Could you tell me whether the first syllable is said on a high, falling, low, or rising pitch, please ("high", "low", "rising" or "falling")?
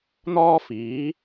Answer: high